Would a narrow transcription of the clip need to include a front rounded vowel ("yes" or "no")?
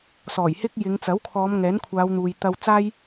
no